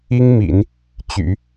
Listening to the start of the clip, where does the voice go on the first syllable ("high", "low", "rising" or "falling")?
high